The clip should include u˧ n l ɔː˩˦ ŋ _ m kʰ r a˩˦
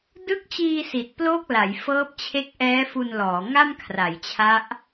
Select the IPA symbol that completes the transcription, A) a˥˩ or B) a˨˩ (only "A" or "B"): A